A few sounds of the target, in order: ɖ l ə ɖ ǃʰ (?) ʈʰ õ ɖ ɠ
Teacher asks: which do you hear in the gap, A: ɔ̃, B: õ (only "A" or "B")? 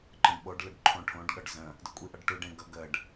B